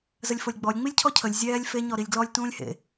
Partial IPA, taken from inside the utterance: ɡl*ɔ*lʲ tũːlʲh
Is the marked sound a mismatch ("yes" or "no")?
no